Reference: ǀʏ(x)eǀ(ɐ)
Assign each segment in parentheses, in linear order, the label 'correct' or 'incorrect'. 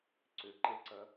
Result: incorrect: ǃ, correct

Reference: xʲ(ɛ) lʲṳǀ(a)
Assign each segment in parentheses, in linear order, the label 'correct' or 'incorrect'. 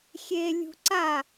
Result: incorrect: e, correct

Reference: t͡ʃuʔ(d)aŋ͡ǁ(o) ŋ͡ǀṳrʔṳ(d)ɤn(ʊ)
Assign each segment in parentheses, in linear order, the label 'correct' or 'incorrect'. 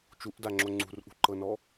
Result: correct, correct, incorrect: ǃ, incorrect: ɔ

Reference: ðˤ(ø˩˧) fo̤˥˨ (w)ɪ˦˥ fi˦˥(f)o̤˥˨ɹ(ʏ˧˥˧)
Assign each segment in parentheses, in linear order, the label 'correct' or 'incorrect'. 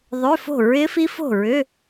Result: incorrect: ø˧˥˧, incorrect: ɹ, correct, correct

